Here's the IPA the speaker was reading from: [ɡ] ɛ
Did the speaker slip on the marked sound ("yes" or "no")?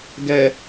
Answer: no